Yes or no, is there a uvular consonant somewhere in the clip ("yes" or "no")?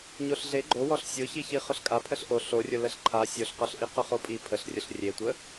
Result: yes